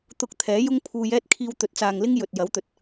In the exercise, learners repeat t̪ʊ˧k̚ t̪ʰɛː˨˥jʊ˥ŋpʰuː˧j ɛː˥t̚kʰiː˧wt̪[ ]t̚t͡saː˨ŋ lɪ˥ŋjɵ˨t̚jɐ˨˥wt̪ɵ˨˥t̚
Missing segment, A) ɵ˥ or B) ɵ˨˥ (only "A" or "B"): B